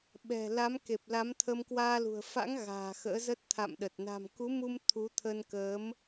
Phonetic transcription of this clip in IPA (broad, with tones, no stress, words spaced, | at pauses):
ɓɛ̤˨˩la˨˦mke˨˩p̚ la˨˦mt̪ʰə˧mkwaː˧lṳ˨˩ə̯ fa̰˧˥ŋ ɣa̤ː˨˩xə̰ː˧˥zə˦˥t̚ t̪ʰa̰˧˨mɗə˨˩t̚ na̤˨˩mku˨˦mu˧m t̪ʰu˨˦t̪ʰə˧nkəː˨˦m